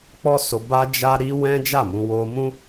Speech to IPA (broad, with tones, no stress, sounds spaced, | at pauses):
k͡p ɔ˦ s o˧ b a˦ d͡ʒ a˦ ɾ i˧ w ɛ̃˦ d͡ʒ a˦˨ m ũ˧ w o˧ m ũ˦